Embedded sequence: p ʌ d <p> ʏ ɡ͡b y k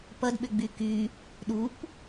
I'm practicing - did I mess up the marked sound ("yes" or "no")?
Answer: yes